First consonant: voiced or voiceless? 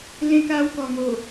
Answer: voiced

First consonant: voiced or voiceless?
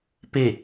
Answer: voiceless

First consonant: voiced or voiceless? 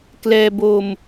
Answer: voiceless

